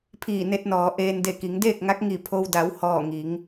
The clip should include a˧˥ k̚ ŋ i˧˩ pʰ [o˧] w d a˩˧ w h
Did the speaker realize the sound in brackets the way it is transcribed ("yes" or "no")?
yes